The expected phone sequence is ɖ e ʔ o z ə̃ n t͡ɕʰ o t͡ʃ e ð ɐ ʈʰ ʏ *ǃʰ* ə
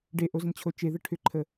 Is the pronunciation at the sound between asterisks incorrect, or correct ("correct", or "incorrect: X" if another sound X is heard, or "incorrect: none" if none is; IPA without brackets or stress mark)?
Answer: correct